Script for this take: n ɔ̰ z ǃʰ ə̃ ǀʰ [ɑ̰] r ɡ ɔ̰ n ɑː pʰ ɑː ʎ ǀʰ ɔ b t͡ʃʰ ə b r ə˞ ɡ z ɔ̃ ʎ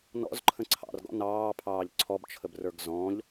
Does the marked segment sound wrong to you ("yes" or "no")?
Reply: no